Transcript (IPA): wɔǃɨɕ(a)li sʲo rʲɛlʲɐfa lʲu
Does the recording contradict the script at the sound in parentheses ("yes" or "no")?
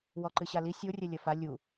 no